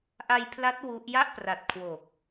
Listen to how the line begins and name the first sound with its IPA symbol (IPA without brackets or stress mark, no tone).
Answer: ʔ